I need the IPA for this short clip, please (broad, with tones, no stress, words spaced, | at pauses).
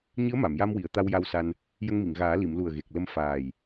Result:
ɲɨ˧˥ə̯ma˨˩˨mja˧mwi˨˩˨ə̯ t̪a˧wja˧wsa˧n | jə˧ŋmi˨˩˨ŋɣaː˨˩˦ li˨˩˨mlu˨˩ə̯ ɣe˨˩k̚ lə˧m faː˨˩j